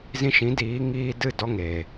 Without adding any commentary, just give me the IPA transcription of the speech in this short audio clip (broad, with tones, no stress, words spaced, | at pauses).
zĩ˧ʃĩ˨˦ diː˨˦ŋiː˧dɨ˦˨ dɔ˧ŋeː˨